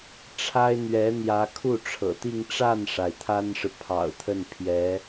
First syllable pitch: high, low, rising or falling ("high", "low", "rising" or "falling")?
high